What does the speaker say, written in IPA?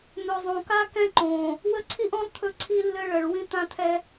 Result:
n̪ɵ˨zˤõ˨ka˦ kɛ̃˦ǃõ˨ | wə˦ǀʰi˦ʔɔ̃˦lˠ t̪ʰɵ˦ǀʰi˦lːɘ˦ɭə˨ɭ wĩ˦t̪ã˦t̪ʰɛ˦

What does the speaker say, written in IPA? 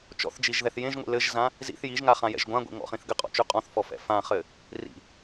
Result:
t͡ʃɔ̰θd͡ʒiʒðɛθ jẽʒŋʷḭ lɘʒzã | zḭθ jiʒŋaχãjɛ̰ʒ ɡʷãɡʷḭŋɔ̰χĩθ ɡɘqʼɔ̰t͡ʃʉ qʼɔ̃θfɔfɛ̰ fãχɘ | rḭ

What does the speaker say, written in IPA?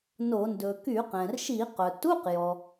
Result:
no˧˩˧ ndɵ˩ ky˧˩˧qɛ̃˩rʃi˧˩˧qœ˩ tu˧˥˧qjɔ˩

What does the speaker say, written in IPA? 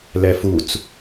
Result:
lɛfut͡s

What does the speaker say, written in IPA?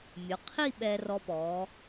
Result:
mʲo˩˧ qʰi˥˧ ɓɛ˧rɔ˧pɔ˩˧

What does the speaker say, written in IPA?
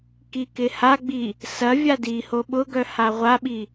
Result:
kikɪhaɡ͡bi | sɐ vʲadiho ɓʊɡœ haʁʷaɓi

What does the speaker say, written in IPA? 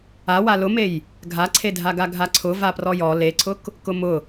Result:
awa lʊmej | ɡʱaǀʰedʱaɡa ɡʱaǀʰʊ vaprɔjɔ leǀʰʊk | kʊmʊ

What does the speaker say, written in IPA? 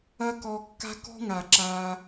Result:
ɐ˦kɔ˧kːa̤˦ kɔ̤˦ŋa˨ǁaː˧

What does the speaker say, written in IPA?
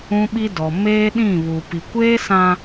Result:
ũ˦ɓi˦ dɔ˨ meː˦ɗĩ˦˨ βu˨ pi˨kʷeː˦ sã˦

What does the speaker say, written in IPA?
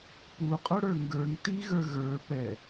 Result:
puqʼoɽə˞ ŋɡə˞ŋ tiɣə˞ ɣə˞ pɛ

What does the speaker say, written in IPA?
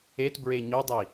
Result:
etbɹe ɲodˤi

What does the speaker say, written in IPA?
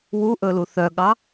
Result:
wuʔɵlu θœɠɑ

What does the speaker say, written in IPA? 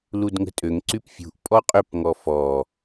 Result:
ludŋə̤tʼøŋǀyp fʲṳʔpʼɔ qʼʏpŋɔ fɔ

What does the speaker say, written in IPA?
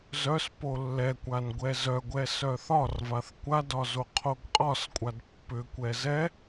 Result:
zœs polːɛkʷan ɡʷɛzœɡʷɛ sœθɒrvaθ kʷadɒ zoqʰoɡqʼɒskʷʼad pːʏkʷɛ zɛ

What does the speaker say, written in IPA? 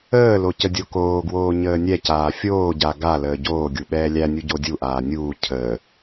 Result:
əːlo cədʲokoːɡwoː ɲəːnʲɛcaː fʲoːɟa ɡa ləːɟoːɡʲu ɓɛːlʲænʲu ɟodʲuʔaː nʲuː cʰəː

